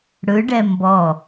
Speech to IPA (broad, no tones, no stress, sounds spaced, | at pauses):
ɽ ɯ ɖ ɛ m b ɔ